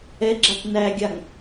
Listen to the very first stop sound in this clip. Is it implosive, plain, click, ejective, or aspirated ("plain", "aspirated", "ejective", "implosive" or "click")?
click